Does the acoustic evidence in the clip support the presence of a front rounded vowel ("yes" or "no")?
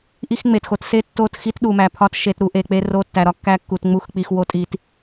no